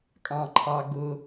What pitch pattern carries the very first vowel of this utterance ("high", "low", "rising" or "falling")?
low